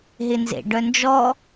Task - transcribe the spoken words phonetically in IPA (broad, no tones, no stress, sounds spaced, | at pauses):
ɦ ɪ n z ḛ ɖ œ n d͡ʒ ɔ